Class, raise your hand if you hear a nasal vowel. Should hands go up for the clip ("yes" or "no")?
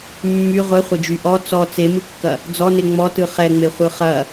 no